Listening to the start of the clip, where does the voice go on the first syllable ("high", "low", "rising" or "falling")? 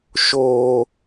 low